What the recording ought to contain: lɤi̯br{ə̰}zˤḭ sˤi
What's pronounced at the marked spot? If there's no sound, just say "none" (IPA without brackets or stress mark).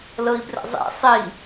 ə̰